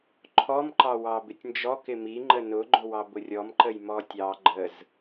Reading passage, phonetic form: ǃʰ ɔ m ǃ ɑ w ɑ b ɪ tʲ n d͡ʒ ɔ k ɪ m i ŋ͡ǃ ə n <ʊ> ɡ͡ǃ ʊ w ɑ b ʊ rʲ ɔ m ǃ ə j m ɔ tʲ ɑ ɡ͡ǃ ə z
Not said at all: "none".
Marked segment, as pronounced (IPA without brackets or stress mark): ʊ